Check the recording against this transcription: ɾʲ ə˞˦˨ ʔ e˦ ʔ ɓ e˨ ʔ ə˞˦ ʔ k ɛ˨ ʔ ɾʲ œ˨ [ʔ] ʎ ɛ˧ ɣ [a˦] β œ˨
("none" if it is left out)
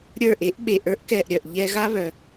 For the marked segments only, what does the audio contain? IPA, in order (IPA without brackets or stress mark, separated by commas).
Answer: ʔ, a˦